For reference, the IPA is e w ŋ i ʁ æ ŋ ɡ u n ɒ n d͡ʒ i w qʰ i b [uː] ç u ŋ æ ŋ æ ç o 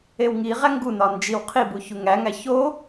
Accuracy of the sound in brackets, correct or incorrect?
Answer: incorrect